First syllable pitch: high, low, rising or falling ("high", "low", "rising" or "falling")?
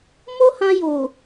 high